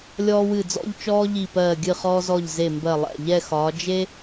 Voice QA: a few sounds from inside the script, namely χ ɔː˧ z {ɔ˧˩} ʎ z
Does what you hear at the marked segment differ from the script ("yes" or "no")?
no